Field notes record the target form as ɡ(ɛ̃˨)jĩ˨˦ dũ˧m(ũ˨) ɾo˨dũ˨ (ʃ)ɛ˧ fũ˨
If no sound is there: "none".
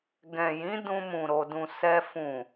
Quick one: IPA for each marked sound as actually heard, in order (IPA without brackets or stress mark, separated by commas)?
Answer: ɛ̃˨, ũ˨, s